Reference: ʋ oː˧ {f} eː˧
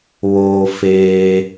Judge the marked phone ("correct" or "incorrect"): correct